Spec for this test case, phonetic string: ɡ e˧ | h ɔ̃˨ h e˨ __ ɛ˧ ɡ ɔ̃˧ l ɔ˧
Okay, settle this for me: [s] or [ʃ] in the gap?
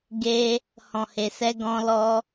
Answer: s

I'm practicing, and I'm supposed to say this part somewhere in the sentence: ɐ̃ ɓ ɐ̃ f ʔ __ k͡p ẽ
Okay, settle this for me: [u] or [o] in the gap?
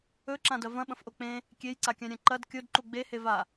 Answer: o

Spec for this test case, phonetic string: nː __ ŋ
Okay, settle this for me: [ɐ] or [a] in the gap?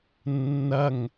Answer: ɐ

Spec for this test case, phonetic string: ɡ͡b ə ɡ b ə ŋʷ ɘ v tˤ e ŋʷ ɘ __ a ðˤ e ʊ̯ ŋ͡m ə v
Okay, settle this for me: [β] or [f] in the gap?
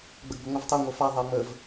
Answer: f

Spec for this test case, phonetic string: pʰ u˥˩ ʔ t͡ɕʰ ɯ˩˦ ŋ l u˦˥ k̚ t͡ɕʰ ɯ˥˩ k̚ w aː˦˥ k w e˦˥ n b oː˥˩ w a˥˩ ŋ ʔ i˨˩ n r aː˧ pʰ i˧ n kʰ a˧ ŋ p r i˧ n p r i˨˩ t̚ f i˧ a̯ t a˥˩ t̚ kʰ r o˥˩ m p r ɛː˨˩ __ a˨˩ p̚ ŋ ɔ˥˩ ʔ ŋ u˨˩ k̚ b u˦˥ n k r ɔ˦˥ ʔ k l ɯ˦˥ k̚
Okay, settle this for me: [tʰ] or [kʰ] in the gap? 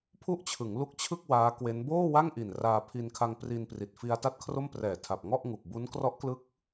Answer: tʰ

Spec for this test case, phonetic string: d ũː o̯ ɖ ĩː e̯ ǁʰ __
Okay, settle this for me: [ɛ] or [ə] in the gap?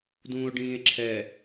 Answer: ɛ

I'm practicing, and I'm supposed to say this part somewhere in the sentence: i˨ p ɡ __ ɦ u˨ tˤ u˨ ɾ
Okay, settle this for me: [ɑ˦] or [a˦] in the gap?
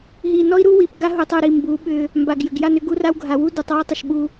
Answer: a˦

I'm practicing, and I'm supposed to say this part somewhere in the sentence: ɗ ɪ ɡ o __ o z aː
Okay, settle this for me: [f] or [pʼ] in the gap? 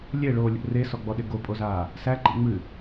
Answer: pʼ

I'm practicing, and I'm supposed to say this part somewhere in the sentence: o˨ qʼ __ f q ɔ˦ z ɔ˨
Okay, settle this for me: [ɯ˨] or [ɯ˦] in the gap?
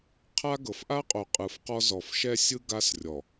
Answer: ɯ˨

